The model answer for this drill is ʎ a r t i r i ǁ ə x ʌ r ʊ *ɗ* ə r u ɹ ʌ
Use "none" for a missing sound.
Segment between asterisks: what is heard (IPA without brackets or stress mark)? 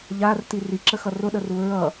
ɗ